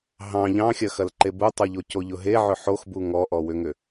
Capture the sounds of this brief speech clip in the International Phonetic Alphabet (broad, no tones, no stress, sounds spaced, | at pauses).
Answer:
ɦ ɑ̃ ʎ ɑ̃ xʲ ɐ x ɐ l ǃ e b u tˤ u ʎ o c o ʎ ʊ ɦ e ʕ ʏ ħ o x b u ŋ ɔ ʔ ɔ w ʏ ŋ ʏ